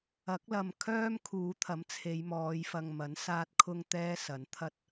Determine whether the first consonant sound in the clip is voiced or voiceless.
voiceless